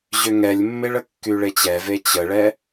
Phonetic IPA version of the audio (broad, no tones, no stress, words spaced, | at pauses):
ʑʏŋɛlʲmːeɭə kːyɭet͡ɕɛve t͡ɕəɭɛ